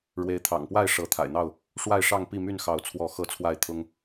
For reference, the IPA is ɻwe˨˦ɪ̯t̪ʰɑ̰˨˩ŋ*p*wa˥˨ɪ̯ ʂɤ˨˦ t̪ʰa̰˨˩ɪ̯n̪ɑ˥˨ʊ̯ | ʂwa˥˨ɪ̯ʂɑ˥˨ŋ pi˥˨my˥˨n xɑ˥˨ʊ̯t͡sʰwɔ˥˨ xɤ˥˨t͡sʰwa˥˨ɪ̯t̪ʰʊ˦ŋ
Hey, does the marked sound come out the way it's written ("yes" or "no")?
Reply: yes